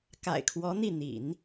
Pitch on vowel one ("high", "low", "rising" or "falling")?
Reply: low